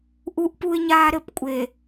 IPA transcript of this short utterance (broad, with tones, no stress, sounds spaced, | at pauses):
ʔ u˦ ʔ p u˦ ɪ̯ ɲ aː˦ ɾ ɘ˦˨ p kʷʼ e˨